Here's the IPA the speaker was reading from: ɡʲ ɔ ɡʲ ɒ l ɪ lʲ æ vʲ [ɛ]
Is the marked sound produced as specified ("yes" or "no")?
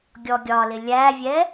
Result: yes